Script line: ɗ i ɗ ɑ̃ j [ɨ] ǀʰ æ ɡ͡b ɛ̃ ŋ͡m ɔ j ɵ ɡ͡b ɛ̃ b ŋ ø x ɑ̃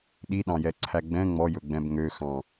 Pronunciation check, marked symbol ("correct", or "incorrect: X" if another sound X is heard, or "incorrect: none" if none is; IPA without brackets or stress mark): incorrect: ɛ